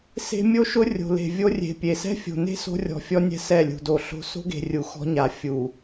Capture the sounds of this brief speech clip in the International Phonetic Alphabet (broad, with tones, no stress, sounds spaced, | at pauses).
s e̤˦ mʲ o˦ ʃ ʊ˦ rʲ o̤˨ l e̤˨ vʲ o˦ rʲ e̤˨ pʲ e˨ s ɛ̤˦ fʲ o̤˨ n e̤˦ s o̤˦ rʲ ɔ̤˨ fʲ ɔ˦ nʲ ɛ̤˦ s ɛ˦˨ lʲ ṳ˨ d o˨ ɬ o̤˦ s o̤˦ ɡ e̤˨ rʲ u˨ x ɔ̤˦ ɲ a˨ fʲ u˨